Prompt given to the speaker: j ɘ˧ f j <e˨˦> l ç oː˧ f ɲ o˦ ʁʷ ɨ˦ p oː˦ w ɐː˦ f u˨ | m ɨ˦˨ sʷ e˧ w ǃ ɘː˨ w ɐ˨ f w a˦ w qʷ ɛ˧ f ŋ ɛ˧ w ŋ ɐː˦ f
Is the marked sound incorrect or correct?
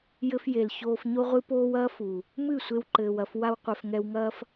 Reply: incorrect